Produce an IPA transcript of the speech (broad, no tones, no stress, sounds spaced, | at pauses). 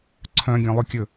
ǀʰ œ̃ ɡʲ œ̃ lˠ ɵ kʲ ɵ